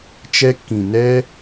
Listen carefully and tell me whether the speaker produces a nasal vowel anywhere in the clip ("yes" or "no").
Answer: yes